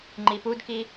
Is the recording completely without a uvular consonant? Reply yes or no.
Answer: yes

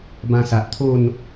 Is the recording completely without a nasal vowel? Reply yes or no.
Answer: no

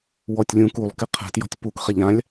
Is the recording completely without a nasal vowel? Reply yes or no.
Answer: no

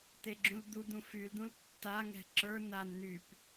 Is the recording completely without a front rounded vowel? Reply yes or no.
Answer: no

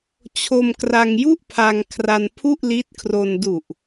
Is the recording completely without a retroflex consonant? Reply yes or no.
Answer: yes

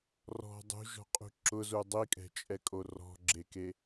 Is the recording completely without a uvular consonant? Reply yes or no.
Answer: no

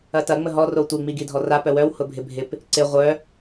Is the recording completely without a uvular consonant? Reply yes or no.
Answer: no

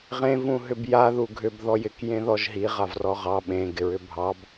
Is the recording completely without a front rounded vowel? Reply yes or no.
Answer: no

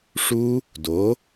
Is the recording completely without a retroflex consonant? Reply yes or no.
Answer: no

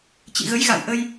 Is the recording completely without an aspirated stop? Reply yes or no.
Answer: yes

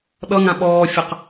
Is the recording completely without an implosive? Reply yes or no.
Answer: no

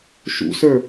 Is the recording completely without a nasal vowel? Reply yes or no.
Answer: yes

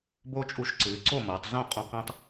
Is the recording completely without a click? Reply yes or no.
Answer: no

